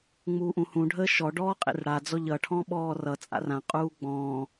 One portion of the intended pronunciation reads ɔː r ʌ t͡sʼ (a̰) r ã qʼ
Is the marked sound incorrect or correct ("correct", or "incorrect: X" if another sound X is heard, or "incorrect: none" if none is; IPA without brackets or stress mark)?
correct